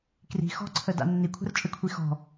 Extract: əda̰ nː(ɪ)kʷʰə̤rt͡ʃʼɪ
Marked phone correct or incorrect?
incorrect